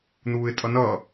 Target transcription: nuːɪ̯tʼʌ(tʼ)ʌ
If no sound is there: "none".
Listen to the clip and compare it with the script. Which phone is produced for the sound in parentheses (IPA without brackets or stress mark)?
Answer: n